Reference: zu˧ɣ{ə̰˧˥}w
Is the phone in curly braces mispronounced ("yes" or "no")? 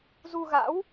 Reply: yes